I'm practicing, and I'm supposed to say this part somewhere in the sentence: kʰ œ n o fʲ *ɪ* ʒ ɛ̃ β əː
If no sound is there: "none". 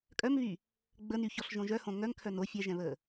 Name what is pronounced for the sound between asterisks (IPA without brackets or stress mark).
ɛ